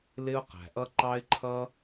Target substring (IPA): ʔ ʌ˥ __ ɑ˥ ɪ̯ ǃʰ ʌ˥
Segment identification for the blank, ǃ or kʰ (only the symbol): ǃ